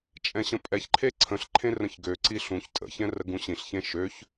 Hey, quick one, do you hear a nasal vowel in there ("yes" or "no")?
yes